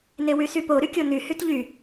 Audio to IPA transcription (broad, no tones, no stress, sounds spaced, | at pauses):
n e w y s y p o ɾ y kʲ o n y h y t ʎ y